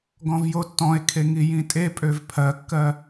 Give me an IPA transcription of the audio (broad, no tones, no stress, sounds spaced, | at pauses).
ɡ ɔ̃ v j o tː ɔ̃ e̯ kʰ e ŋ i j ĩ tʼ e pʼ ø v pʰ ɜ kː ɜ